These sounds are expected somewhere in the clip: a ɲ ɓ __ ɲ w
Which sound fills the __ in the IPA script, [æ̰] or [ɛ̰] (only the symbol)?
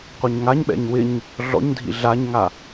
ɛ̰